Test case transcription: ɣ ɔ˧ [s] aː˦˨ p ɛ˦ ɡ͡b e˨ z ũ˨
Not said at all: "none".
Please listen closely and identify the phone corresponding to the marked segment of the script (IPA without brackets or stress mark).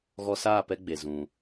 s